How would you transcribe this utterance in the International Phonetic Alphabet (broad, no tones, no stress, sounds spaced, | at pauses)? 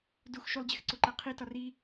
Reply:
d u x ʃ u lˠ d͡ʑ e x ǀ o ǃ æ qʰ i t ɒ r i